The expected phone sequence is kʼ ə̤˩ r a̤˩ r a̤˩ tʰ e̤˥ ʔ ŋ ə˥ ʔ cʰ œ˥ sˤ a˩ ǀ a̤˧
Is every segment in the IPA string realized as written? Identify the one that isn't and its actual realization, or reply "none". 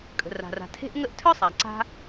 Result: cʰ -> tʰ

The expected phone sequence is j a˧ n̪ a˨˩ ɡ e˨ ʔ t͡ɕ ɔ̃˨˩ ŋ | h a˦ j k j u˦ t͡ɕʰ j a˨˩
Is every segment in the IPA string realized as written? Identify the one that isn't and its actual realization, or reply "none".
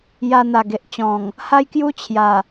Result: none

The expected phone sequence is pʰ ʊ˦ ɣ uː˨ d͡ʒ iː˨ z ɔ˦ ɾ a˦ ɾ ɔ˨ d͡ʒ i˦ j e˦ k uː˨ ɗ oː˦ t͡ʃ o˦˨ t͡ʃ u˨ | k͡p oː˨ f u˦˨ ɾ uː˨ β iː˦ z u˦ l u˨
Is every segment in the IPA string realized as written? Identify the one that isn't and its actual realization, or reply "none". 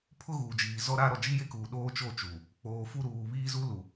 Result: none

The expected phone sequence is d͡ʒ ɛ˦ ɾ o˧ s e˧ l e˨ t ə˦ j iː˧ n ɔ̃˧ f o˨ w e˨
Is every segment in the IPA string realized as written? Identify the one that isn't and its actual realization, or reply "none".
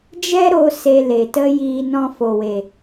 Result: none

